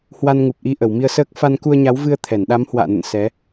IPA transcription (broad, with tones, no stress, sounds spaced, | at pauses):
h w a˧ n ŋ u˨˩ p̚ ʔ i˨˦ ʔ ə˧˩ w m i˧ ə̯ s əː˦˥ k̚ f a˧ n k u˧ ə̯ ɲ a˨˦ w v ɨ˧ ə̯ t̪ʰ ɛ˧˩ n ɗ a˨˦ m h w a̰ː˧˨ n ə̰˧˨ n s ɛ˨˦